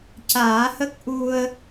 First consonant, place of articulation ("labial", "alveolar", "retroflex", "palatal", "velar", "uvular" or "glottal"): palatal